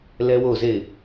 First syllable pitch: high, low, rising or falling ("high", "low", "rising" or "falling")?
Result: high